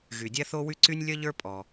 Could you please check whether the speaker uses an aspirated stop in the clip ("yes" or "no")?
no